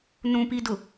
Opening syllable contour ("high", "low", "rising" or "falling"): high